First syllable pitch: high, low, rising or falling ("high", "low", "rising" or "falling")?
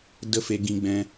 high